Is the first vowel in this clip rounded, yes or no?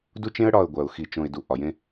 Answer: yes